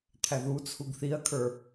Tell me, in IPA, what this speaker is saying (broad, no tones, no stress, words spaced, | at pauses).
t̪ʰæðut͡sʰuɡ θiɐ̯kʰə˞